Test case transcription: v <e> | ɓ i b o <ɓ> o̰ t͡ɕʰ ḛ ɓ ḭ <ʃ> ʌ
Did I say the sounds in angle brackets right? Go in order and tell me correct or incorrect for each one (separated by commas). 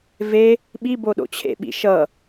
correct, incorrect, correct